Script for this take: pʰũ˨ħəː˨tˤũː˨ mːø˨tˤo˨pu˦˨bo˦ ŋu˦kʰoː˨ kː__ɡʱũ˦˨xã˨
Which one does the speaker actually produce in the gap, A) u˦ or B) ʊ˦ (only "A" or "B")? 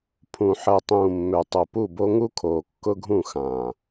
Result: B